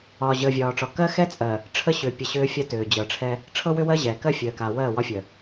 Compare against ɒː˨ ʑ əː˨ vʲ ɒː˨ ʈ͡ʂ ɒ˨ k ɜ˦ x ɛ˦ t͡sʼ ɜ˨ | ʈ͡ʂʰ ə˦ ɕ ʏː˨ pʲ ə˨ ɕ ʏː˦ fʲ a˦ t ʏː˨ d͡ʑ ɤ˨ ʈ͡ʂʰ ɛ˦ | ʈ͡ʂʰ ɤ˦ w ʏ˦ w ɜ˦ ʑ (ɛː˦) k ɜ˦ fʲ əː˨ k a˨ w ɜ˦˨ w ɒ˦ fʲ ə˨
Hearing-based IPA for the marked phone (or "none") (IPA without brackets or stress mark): ɛː˨